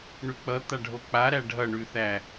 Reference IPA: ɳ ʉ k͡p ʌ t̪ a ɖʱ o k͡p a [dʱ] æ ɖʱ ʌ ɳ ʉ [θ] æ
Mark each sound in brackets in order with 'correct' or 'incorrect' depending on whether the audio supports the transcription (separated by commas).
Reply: incorrect, correct